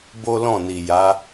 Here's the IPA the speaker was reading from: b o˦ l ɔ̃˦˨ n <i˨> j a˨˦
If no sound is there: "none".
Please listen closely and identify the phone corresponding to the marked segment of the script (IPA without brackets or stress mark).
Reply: i˨